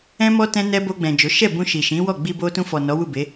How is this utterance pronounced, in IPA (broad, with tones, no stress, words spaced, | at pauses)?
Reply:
ɛ̃˦mɔ˦ tɛ̃˦nɛ˦ bo˧ɡ͡bɛ̃˨ d͡ʒo˨˦ ʃɛ˦˨bũ˧ ʃi˨ʃĩ˨˦wɔ˦˨ ɡ͡bi˧bo˧tũ˧fɔ˨ nɔ˨˦wu˦˨be˨˦